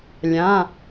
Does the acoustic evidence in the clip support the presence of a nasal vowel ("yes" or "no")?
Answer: yes